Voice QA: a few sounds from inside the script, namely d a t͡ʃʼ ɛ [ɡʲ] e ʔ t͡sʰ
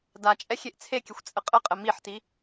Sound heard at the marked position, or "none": xʲ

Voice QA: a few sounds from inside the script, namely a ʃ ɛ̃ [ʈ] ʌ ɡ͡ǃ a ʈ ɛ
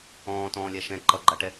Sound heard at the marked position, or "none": ǃ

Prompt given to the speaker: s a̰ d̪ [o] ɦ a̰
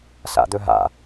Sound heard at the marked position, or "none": ɵ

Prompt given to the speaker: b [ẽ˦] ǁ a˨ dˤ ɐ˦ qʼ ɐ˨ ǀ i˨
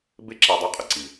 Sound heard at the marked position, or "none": e˦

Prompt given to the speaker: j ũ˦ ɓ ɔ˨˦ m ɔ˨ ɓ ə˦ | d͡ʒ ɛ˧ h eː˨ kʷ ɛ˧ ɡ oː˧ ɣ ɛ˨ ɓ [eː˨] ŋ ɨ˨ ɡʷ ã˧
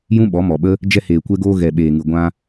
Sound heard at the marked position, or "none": eː˨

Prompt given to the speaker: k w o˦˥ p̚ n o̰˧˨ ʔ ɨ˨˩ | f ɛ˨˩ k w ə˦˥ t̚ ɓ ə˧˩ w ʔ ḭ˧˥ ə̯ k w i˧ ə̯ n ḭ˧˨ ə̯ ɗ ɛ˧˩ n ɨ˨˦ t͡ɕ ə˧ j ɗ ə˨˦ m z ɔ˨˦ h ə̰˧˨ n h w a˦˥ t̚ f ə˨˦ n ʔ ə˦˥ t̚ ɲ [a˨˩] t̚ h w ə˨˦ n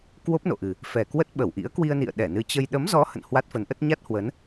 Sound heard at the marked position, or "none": a˦˥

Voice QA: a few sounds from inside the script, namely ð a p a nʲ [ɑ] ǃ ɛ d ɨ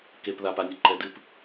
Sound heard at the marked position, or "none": ɐ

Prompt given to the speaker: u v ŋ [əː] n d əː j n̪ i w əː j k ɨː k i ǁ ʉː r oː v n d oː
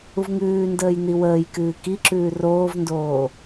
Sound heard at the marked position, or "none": ʉː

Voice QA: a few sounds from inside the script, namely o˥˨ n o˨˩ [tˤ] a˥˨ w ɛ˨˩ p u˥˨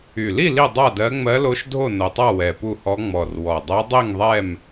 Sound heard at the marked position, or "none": tˤ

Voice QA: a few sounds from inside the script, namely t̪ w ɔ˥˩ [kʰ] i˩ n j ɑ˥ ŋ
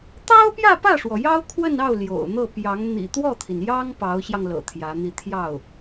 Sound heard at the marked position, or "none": t̪ʰ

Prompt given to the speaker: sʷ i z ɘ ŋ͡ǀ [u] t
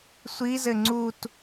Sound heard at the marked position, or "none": u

